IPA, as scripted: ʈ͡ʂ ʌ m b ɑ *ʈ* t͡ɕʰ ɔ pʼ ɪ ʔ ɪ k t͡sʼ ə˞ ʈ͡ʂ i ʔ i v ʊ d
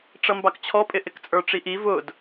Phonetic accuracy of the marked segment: incorrect: k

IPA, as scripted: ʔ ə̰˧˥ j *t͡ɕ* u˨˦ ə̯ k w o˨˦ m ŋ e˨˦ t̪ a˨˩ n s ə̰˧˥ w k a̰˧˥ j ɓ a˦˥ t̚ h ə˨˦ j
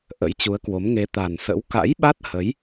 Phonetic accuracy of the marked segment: correct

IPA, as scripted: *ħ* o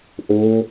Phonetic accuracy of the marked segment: incorrect: ʔ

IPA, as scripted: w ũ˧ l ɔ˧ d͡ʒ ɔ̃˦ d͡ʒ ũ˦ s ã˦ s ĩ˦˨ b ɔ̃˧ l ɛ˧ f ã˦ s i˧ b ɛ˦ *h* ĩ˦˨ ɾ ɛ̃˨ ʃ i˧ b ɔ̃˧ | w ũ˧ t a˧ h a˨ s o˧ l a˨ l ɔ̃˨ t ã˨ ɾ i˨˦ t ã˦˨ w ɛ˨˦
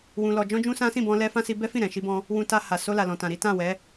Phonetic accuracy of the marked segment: incorrect: f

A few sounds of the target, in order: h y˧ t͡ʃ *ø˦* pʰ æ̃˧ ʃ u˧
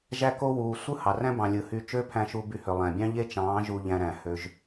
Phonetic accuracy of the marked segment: correct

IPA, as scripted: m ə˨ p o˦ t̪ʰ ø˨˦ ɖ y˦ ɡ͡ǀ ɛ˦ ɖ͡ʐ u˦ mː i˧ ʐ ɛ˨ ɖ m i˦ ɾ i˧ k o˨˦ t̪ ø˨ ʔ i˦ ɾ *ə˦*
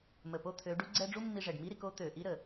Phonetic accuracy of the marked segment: incorrect: ə˨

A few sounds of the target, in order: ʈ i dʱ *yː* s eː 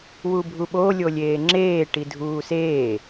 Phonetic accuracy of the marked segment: incorrect: uː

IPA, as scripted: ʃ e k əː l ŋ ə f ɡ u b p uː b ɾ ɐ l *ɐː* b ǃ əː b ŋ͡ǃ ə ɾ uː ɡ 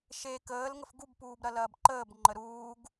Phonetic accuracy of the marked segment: correct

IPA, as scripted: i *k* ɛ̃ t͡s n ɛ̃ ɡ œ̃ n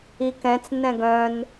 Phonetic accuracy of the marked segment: correct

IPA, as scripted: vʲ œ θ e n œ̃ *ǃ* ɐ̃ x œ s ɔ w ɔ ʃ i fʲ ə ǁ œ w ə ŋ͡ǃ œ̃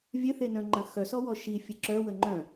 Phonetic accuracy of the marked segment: incorrect: ŋ͡ǃ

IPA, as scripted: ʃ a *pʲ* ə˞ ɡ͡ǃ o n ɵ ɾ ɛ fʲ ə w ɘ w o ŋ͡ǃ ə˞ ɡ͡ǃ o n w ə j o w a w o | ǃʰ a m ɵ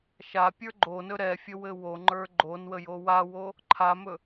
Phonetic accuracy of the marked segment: correct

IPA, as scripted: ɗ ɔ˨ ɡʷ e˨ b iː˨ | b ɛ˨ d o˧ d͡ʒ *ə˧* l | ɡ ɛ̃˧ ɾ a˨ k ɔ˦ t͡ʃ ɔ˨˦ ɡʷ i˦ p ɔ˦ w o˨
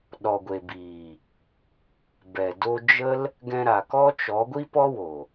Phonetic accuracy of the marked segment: incorrect: ə˦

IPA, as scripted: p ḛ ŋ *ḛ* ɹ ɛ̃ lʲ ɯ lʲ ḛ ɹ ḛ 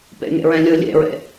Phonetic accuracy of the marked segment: correct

